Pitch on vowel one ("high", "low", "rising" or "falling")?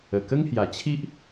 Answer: low